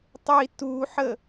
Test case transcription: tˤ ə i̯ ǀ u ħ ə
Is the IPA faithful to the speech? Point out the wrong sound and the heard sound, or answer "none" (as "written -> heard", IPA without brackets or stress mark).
ǀ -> t